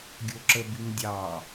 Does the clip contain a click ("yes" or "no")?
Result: yes